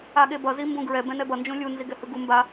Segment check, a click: absent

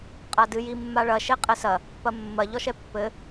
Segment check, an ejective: present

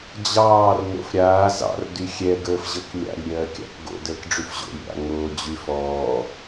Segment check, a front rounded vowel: present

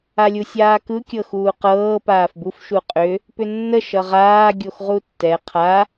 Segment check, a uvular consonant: present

